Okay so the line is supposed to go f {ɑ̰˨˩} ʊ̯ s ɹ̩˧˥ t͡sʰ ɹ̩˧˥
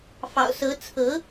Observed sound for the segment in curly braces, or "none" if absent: ɑ̰˨˩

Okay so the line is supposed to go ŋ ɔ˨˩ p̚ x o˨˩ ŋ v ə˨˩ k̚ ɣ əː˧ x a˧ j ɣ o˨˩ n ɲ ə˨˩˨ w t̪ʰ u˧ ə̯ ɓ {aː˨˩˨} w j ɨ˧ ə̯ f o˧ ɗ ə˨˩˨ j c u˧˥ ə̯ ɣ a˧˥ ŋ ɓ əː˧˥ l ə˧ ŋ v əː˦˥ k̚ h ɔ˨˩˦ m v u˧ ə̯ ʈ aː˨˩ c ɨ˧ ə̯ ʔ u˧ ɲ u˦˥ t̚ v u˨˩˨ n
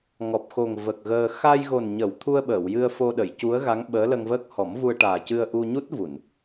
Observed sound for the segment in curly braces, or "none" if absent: əː˨˩˨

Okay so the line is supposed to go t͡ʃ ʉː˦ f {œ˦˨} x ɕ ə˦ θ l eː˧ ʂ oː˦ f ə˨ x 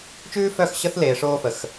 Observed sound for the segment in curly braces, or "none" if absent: œ˦˨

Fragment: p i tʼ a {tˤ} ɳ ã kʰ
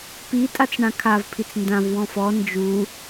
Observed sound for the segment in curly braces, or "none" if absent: t͡s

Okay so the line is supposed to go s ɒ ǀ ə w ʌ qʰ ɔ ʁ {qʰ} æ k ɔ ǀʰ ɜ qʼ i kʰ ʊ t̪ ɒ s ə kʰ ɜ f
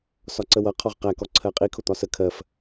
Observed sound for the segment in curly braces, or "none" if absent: q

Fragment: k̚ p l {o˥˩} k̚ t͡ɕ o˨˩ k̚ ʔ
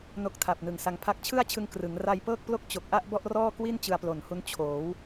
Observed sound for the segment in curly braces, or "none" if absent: o˥˩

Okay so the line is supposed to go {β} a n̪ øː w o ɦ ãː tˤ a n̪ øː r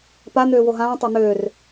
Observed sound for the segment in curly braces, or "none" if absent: p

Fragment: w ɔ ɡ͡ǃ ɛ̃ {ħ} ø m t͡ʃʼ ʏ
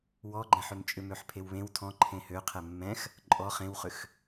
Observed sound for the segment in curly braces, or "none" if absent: ħ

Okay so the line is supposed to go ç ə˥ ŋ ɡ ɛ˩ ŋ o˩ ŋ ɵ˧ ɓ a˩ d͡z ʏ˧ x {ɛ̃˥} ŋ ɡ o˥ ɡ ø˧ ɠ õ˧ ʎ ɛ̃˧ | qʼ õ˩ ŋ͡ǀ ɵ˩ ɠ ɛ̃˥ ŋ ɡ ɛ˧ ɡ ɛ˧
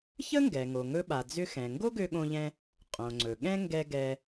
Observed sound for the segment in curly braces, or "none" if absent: ɛ̃˩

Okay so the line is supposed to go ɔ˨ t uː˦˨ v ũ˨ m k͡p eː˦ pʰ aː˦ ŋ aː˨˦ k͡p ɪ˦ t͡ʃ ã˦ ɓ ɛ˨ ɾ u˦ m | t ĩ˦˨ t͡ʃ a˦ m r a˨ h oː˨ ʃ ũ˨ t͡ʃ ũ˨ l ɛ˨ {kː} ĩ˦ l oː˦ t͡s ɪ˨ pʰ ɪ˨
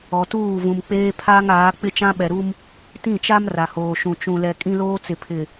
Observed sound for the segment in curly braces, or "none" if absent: kʼ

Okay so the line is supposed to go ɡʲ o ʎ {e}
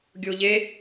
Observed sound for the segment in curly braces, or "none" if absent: e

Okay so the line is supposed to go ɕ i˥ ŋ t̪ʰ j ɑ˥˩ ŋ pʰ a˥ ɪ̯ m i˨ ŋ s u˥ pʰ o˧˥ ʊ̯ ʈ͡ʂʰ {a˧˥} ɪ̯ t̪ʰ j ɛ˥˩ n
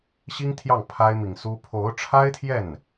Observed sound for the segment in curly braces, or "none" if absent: a˥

